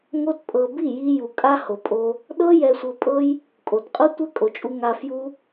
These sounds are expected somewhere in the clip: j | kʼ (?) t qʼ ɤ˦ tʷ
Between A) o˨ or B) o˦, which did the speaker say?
A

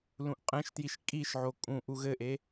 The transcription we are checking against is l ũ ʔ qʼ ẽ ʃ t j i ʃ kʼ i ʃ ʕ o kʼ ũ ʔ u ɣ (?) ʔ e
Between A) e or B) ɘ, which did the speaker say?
B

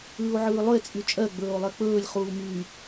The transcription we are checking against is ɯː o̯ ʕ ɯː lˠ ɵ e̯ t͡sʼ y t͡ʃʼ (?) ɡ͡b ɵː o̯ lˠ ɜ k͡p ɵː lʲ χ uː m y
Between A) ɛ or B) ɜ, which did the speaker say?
B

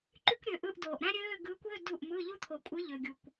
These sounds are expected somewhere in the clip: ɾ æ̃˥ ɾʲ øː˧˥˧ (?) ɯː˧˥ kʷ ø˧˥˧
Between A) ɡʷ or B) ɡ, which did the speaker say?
B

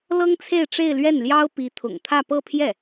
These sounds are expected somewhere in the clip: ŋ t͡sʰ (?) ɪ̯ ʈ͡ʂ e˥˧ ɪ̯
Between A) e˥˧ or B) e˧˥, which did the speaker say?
A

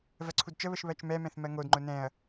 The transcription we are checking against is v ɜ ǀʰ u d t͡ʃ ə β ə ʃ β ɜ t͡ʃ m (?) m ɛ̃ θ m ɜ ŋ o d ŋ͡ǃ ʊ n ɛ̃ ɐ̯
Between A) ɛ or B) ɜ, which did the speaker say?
A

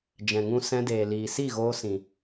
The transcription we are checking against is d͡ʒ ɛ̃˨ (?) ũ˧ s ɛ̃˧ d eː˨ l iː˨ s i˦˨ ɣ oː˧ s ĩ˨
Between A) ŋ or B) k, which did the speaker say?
A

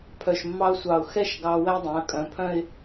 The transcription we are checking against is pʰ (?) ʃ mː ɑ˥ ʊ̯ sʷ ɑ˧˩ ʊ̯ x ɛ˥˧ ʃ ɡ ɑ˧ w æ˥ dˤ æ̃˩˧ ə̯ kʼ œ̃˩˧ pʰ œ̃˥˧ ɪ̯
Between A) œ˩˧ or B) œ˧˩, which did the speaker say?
B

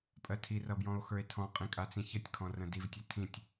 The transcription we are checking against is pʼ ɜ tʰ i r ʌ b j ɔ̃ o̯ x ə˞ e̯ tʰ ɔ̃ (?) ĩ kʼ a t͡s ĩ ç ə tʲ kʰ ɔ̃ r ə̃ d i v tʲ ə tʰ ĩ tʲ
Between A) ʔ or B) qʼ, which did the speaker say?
B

